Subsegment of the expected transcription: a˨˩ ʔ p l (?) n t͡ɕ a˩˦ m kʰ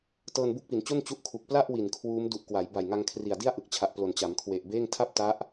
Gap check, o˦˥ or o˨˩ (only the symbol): o˨˩